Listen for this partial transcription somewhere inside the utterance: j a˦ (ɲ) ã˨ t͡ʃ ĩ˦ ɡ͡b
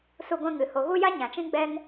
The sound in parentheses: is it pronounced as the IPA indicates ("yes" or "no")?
yes